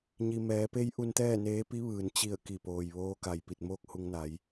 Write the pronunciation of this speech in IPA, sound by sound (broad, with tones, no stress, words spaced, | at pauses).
ɲi˩mɛː˩˧pe˧˥j ʔu˧nt̪ɛː˥˨neː˧˥ pi˧˥ʋɯː˩n t͡ɕi˧˩ə̯ ki˧˩poː˩j ʋoː˧˥ka˩jpi˧˩t̚ moː˥˨k̚hu˧ŋna˩˧j